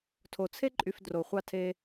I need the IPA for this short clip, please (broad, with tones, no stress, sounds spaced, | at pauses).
tʰ o˨ t͡sʰ e˦ ǃʼ y˧ f d r o˨ χʷ ɑ˧ tʰ e˧